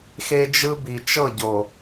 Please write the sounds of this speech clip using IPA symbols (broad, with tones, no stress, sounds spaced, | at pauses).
x e˦ d͡ʒ ɯ˦ b i˨ t͡ʃ ɤ˦˨ ɟ o˨